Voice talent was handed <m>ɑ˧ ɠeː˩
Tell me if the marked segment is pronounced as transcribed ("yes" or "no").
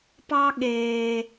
no